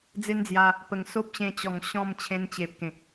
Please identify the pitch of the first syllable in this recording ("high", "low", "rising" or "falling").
high